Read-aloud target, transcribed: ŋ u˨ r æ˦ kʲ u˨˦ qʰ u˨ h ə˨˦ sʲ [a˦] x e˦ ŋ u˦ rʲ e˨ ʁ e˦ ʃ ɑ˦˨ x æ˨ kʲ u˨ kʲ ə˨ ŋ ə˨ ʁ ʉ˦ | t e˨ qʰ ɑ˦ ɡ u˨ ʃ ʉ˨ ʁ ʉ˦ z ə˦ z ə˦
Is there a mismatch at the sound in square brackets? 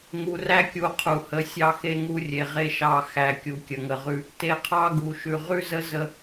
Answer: yes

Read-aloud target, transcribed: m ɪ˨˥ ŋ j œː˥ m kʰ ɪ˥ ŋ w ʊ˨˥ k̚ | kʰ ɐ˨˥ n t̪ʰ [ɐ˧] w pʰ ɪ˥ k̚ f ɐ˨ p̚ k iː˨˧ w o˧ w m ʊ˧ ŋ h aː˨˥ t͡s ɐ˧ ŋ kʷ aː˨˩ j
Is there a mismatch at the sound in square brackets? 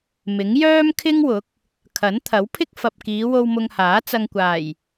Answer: yes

